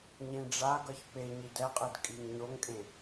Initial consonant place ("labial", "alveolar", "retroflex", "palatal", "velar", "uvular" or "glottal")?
palatal